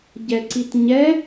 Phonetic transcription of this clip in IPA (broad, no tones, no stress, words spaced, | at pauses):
ɟɛǀitɲɛ